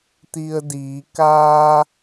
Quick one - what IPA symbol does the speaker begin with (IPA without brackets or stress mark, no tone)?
t̪